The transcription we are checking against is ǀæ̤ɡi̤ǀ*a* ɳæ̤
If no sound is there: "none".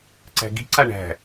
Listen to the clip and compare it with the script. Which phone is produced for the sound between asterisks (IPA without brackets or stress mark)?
a